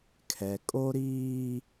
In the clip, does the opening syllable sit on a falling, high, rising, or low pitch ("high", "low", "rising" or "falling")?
low